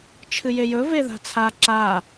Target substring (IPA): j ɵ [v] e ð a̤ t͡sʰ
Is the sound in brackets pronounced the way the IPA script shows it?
yes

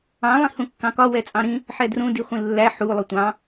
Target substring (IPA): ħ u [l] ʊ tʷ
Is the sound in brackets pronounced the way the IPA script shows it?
no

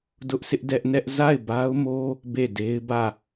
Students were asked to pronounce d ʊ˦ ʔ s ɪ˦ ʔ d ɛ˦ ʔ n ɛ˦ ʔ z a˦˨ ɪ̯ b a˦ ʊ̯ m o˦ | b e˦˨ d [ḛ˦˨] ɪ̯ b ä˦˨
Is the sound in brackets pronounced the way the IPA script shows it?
no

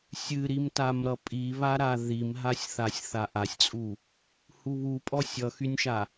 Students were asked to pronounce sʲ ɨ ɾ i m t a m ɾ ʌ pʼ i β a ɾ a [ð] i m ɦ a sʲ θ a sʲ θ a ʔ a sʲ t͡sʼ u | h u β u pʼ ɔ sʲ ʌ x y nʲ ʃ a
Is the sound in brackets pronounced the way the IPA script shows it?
yes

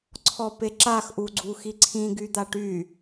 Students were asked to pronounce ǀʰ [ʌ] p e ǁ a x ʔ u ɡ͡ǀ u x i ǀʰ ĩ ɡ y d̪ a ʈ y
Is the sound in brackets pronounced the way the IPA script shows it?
no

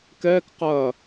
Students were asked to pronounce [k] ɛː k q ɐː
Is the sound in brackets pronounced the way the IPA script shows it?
yes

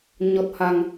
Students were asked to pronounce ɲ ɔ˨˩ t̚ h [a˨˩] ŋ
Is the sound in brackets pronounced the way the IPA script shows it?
yes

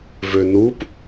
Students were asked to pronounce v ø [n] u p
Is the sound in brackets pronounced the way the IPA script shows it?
yes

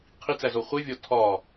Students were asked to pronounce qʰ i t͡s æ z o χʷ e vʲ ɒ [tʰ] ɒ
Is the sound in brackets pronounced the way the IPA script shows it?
yes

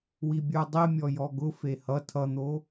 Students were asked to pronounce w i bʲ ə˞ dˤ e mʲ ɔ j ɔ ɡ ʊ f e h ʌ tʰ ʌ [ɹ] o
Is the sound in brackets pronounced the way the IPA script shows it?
no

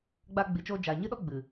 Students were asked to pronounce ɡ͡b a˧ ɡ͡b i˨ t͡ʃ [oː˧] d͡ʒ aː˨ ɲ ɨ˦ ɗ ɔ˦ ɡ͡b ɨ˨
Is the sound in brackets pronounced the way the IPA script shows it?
yes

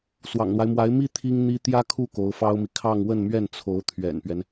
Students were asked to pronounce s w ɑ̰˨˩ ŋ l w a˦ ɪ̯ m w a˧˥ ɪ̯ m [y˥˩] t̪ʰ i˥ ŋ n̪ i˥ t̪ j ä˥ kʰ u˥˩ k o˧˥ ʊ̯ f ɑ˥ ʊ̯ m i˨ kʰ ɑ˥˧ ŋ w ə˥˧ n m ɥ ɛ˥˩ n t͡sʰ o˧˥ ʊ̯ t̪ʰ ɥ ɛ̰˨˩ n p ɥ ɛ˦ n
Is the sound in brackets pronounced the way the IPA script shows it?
no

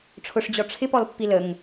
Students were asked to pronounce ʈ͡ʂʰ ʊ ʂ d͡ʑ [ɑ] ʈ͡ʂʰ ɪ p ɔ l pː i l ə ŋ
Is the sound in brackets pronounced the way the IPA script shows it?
no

